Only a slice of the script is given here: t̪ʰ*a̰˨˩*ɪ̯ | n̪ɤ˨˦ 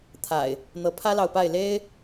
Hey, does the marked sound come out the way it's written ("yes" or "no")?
yes